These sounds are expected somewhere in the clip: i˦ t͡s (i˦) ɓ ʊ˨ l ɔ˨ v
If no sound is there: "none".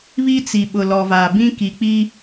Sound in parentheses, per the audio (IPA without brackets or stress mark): i˨